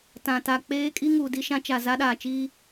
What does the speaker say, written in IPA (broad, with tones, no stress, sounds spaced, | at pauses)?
t ã˨ t a˨ k͡p eː˦ kʼ i˦ ŋ u˨ d i˦ ʃ ã˦ t͡ʃ a˨ z a˦ ɗ aː˨ t͡ʃ iː˦